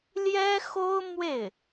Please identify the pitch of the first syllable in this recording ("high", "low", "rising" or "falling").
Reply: high